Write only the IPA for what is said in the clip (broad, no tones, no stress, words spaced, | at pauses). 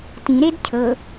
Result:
tĩɾed cʰɤ